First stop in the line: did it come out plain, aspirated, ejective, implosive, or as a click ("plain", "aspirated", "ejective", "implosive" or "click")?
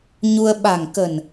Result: implosive